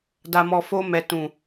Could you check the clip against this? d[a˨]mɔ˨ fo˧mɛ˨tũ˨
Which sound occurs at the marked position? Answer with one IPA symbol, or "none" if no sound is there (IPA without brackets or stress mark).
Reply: a˨